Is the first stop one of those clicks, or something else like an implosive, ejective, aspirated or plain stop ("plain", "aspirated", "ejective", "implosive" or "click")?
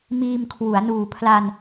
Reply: aspirated